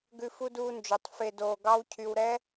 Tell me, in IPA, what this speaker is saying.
ɡ ʉ˧ f u˦ d uː˧ n d͡ʒ ø˨ tˤ f e˨ d oː˨ ɡ ɑ˦ w cʰ y˧ w ɾ ɛ˦

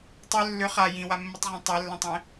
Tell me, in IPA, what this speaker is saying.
tˤ œ lː ʏ χ a j ĩ w a mː i tˤ ʁ ɔ̃ tˤ e lː ɐ̃ tˤ ẽ

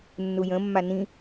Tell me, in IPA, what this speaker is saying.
nː u j ə̃ mː a n ĩ

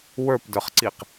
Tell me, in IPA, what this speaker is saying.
w ə˞ p d ə˞ χ ǀ i q

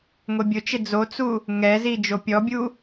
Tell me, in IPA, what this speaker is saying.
ŋʷ e bʲ ʊ t͡ʃ ɪ d͡z o t͡s u | ŋ ɛ z i d͡ʒ o pʲ ɔ bʲ u

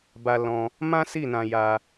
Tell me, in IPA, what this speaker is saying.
b a˧ l ɔ̃˧ | m ã˦ s i˦˨ n ã˧ j a˧

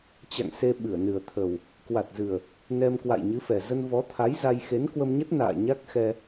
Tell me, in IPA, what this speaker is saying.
t͡ɕ a̰˧˨ ŋ s e˧ ɓ ɨ˧˩ ə̯ n ɨ˨˩ ə̯ t̪ʰ ə˨˩ w | k w a˨˩ t̚ z ɨ˨˩ ə̯ | n ɛ˧ m k w a̰˧˨ j ɲ ɨ˨˦ f ɛ˨˩ z ə˧ n v ɔ˨˦ t̪ʰ a˨˦ j z a˧ j x e˨˦ n k w ə˧ m ɲ ə˦˥ t̚ n a̰ː˧˨ ɲ a˦˥ k̚ x ɛ˧

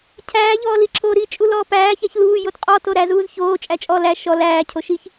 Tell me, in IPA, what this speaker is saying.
cʰ æː ʎ ɔː l i ǁʰ oː ɾ i t͡ʃʼ u l ɔː p æː ç æ ç l uː j o t qʼ ɔ t o ɾ æ z uː z ç oː t͡ʃʼ æ t͡ʃʼ ɔ l æ ʃ ɔ l æː cʰ o ʃ i ç

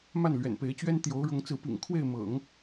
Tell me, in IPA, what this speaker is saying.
m a˥˩ n l ɥ ɛ̰˨˩ n p e˧˥ ɪ̯ t͡ɕ ɥ ɛ˥ n t̪ j o˧˥ ʊ̯ ɻ ʊ˧˥ ŋ t͡s ɹ̩˧˥ p ḭ˨˩ ŋ kʰ w e˥˩ ɪ̯ m ɤ̰˨˩˦ ŋ

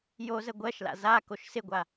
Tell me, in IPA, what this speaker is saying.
j o z ə ɡʷ ɜ ʃ l a̰ z a k o ʃ s ɪ ɡʷ a

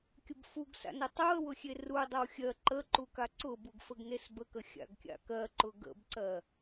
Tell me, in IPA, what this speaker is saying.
kʲ ʊ b f u ɡ s a̰ n ʊ tˤ u ə̯ w ʊ xʲ e r u dˤ ə w xʲ ɜ ǃ ə ǃ u k a ǀ ʊ b u ɡ f ə ɡ n e s b ə k ə xʲ a̰ ɡ kʲ a̰ k ɜ ǃ ʊ ɡ ə̰ b ǀ ɜ

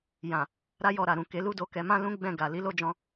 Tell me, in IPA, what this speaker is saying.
j ã˨ | ɾ a˦ j ɔ˧ ɾ a˨ ɾ ũ˨ k e˨˦ l u˦ d o˧ k ɛ˧ m ã˦ l ũ˦ ɡ͡b ɛ̃˦˨ ɡ a˨ l i˨˦ l o˦ d͡ʒ ɔ̃˧

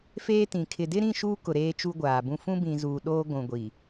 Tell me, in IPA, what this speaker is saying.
f eː˦ t ĩ˨ kʰ ɪ˨ d ɪ˦ ɾ ĩ˦˨ ʃ uː˦ k ʊ˨ ɾ eː˦ t͡ʃ u˦ ɡʷ aː˨ b ũ˦ f ũ˦ b ĩ˨ z uː˨ ɗ oː˦ ɡʷ ũ˨ ɡʷ i˨

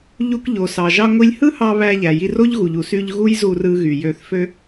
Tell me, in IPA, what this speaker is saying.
ʎ u˧ k ʎ o˩ s ɑ˩ ʒ ɑ˧ ŋʷ i˧ lʲ h ɯ˥ h ɑ˧ β æ˧ ʎ æ˩ j i˧ r o˥ ʎ ɣ u˩ ʎ u˩ s y˧ ʎ ɣ u˥ j z u˧ r ɯ˧ ɣ y˩ j ø˧ θ f ø˥

